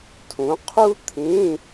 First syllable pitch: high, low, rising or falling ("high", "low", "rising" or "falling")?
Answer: rising